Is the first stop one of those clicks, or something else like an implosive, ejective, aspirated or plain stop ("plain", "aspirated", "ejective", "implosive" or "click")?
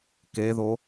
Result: plain